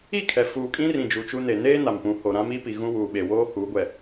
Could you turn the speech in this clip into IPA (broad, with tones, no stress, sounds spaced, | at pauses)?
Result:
i˦˨ kʰ ɛ˨ f uː˨ kʼ ĩ˦ r ĩ˨ d͡ʒ u˨ t͡ʃ u˦ n e˨ n eː˦ n a˨ m p ũ˨˦ h o˨ ɾ ã˦ m i˦ p i˨ ɣ ũ˦ w uː˨ ɓ e˨ w oː˦ h uː˨˦ ɡʷ ɛ˨